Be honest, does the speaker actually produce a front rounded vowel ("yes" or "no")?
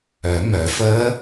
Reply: yes